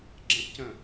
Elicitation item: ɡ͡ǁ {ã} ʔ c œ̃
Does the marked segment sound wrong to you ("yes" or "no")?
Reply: yes